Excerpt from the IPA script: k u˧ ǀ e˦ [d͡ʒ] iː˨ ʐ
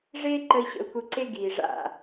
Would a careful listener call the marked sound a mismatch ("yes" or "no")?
yes